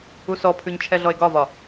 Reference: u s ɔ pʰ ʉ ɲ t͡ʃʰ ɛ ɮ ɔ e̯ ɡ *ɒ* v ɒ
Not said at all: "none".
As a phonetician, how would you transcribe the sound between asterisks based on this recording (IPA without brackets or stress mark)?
ɒ